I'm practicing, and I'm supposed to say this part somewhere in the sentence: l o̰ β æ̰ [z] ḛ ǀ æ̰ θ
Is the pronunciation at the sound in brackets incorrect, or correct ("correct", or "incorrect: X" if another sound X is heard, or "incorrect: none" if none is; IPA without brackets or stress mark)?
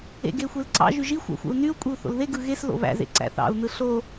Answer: correct